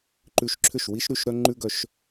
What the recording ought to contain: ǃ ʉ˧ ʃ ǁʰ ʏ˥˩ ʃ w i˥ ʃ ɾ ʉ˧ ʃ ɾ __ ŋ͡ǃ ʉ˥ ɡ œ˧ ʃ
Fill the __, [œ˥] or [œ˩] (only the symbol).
œ˥